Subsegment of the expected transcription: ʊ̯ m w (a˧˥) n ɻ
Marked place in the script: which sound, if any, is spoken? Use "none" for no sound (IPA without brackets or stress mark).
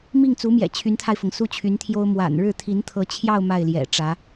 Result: a̰˨˩